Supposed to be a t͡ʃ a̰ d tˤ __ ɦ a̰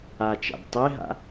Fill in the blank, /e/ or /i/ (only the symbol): e